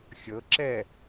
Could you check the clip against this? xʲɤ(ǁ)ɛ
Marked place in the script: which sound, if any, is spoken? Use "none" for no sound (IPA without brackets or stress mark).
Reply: ǁ